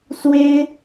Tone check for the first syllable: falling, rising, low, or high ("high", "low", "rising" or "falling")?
high